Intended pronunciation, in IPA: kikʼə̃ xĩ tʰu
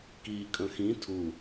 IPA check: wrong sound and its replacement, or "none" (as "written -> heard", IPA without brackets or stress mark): none